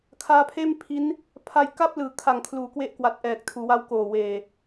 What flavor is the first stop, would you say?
aspirated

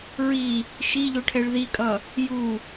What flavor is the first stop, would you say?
aspirated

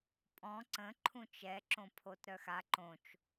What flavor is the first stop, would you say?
ejective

